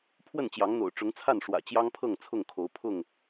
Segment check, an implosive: absent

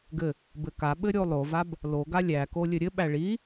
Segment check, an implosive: present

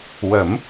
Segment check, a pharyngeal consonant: absent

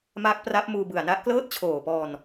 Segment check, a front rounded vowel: absent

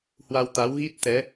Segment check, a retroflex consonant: absent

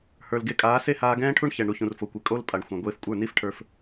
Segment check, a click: absent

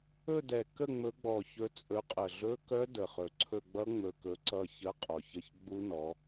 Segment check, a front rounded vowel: present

